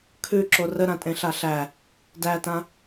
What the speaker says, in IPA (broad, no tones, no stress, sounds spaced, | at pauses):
kʰ ʉ ǁ o r ə ɾ ã tʼ ẽ ɬ a ɬ æ | d æ t ã